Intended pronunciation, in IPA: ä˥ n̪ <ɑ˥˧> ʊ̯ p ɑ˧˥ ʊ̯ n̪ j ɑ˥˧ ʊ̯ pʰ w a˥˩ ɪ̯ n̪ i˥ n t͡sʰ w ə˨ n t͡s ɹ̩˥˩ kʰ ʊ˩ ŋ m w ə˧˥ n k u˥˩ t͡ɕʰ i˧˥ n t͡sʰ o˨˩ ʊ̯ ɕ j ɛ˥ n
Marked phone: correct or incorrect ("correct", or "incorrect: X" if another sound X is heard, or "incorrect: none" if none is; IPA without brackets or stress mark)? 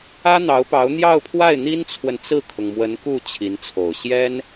incorrect: ɑ˧˥